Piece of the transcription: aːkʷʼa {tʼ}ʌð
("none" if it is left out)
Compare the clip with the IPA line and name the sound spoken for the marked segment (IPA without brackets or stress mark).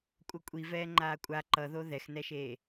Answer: ǃ